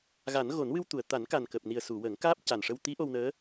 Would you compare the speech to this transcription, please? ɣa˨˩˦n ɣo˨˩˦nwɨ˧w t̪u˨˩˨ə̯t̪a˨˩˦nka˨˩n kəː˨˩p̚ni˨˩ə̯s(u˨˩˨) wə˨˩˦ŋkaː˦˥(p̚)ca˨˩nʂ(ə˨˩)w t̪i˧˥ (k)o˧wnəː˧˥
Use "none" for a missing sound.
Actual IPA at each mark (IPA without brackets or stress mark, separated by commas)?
u˨˩˨, p̚, ə˧, ʔ